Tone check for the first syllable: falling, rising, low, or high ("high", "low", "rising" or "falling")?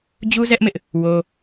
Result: high